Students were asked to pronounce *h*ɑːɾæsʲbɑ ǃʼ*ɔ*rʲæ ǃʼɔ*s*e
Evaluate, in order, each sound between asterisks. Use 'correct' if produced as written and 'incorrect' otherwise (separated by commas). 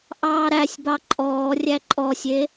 incorrect, incorrect, incorrect